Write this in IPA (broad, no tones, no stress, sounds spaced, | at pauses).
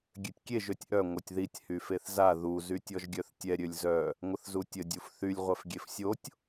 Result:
ɡʲ ø tʲ kʲ e ʒ ø tʲ ʔ œ ŋʷ œ tʲ ð i tʲ h y f e θ z a ð u z y tʲ ɔ ʒ ɡʲ œ θ tʲ ɛ ɾʲ ø lʲ z œ | ŋʷ ə θ z u tʲ ə dʲ u f θ y lʲ ʁʷ ɛ f ɡʲ e f sʲ o tʲ